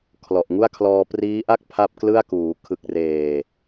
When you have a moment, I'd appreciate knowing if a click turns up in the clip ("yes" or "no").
no